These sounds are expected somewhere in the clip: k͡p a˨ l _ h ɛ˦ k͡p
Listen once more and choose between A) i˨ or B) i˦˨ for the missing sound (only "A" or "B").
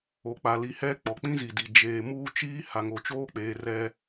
A